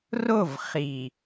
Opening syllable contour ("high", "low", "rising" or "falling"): falling